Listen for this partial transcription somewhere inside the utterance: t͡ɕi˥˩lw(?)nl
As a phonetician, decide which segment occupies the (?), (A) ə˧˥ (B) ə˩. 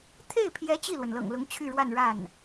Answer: B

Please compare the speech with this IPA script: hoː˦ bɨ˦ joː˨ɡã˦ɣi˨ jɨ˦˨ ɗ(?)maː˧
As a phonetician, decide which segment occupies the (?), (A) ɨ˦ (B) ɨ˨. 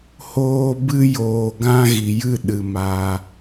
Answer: B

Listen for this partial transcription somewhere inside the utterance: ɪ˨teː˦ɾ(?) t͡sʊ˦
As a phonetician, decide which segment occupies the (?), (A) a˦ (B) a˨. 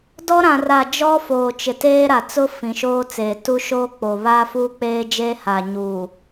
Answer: B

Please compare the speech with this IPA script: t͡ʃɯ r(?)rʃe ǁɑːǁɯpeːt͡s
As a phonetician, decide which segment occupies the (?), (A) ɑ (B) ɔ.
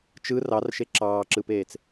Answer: A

